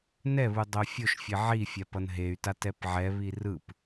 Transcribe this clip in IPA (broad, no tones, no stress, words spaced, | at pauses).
nɛβu dˤofʲoʃfʲe ʕifʲap ʌnɦey̯tat ɛpʕɛβi rɯp